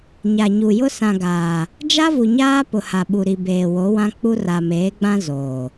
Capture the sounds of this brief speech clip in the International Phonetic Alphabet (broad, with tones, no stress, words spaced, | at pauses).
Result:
ɲa˨ɲu˨ jʊ˦sã˨ɡaː˨ | d͡ʒa˦vu˨ɲaː˦pʊ˨ ha˨ɓu˨ɾi˨beː˨ wo˨˦wã˦k͡pu˦ ra˨meː˨˦ɡ͡bã˦ zoː˨